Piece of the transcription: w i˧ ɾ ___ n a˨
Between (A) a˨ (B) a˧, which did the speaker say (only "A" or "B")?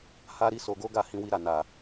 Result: A